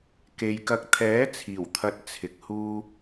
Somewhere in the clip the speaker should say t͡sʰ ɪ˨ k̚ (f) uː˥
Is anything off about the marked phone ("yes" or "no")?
yes